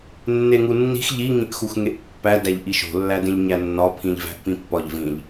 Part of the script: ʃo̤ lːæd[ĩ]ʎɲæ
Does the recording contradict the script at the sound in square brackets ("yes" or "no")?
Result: yes